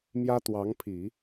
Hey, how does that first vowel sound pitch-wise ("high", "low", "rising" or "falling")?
high